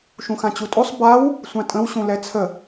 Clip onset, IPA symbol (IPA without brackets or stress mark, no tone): ʃ